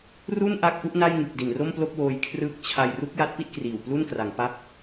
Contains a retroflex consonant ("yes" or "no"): no